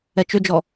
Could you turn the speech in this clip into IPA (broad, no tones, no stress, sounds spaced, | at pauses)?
ɛ t͡ʃ ʏ d͡ʒ ɔ